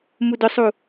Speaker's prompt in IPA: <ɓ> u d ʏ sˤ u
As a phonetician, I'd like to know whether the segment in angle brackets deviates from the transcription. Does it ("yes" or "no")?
yes